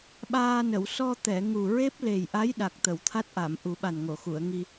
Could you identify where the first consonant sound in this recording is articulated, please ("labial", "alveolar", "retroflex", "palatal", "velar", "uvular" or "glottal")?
labial